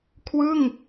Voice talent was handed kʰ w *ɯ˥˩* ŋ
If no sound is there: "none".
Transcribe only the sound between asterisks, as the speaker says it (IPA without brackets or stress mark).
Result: ɯ˥˩